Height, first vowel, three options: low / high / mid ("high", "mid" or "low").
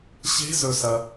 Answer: mid